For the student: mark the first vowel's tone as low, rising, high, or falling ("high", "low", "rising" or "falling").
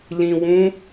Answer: low